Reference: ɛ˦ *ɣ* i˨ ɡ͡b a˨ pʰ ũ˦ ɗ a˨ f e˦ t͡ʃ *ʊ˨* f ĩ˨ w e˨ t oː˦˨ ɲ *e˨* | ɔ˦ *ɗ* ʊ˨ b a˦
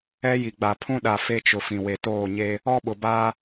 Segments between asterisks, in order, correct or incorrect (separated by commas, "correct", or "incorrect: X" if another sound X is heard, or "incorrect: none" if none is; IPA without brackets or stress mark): incorrect: j, correct, incorrect: e˦, incorrect: ɓ